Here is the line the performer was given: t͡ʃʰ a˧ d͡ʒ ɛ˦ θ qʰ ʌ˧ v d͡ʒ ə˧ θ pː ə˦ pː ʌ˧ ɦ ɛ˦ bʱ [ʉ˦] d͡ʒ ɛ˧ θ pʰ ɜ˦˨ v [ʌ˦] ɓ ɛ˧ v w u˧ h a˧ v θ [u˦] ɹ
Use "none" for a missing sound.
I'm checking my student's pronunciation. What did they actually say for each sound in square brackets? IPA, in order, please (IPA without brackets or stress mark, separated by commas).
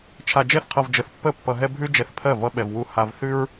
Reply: ʉ˦, ʌ˦, ʉ˦